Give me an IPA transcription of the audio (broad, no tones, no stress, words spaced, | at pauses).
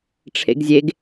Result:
ʈ͡ʂʰḛɡzʲeɡ